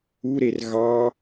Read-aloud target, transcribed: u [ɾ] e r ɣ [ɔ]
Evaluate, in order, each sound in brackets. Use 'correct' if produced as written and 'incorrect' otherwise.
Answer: correct, incorrect

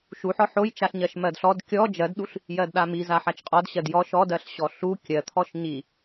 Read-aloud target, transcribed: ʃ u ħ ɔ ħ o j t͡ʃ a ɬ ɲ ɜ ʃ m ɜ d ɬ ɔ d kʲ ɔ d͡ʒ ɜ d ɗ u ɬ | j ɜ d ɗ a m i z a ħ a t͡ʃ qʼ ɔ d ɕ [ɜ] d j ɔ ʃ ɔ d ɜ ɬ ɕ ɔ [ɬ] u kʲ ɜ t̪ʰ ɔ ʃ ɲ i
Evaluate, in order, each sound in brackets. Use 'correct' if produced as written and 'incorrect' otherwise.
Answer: correct, correct

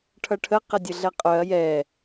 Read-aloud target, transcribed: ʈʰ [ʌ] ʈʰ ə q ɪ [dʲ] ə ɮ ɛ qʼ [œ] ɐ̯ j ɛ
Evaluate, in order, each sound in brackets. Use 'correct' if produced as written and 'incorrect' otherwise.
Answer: correct, correct, correct

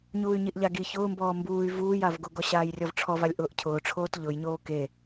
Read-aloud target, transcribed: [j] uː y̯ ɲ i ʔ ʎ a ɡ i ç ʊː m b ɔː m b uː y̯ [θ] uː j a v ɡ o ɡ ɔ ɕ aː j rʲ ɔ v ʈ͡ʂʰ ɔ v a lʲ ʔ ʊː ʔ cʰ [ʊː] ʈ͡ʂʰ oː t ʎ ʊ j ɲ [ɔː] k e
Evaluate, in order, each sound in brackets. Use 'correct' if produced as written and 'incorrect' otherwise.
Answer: incorrect, incorrect, correct, incorrect

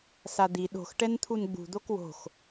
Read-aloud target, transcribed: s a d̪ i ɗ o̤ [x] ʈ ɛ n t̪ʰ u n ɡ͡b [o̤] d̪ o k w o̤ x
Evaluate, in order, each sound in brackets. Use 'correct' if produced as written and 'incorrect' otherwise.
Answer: correct, incorrect

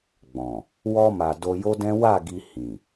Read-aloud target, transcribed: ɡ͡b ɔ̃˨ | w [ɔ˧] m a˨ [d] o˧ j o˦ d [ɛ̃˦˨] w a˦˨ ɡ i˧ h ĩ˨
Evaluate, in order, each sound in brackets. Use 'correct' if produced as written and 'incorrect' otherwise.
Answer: correct, correct, incorrect

